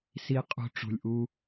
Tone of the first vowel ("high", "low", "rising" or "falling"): low